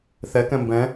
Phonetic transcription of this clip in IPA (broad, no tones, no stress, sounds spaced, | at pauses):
θ ɛ k ɛ̃ m b ɛ̃